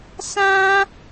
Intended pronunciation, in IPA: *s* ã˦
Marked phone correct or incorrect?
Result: correct